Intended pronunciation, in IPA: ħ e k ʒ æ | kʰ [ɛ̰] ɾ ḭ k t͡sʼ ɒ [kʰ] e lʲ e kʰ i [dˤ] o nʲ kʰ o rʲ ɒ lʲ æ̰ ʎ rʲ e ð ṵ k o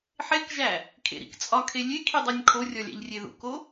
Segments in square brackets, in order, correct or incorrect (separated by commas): incorrect, correct, correct